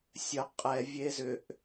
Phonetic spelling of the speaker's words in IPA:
sʲ ə qʼ ɛ vʲ e z ʏ ʔ

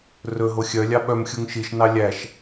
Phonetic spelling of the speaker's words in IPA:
r ɵ ɦ o xʲ œ lʲ ɑ ɓ œ m xʲ u ŋ ʃ i ʃ n ɑ lʲ æ ʃ

